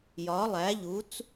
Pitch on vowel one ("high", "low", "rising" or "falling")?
rising